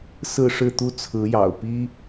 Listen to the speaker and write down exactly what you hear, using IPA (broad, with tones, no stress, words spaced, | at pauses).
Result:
sɹ̩˥˧ʂɻ̩˥˩t̪u˥ t͡sʰɹ̩˧˥jɑ̰˨˩ʊ̯pi˥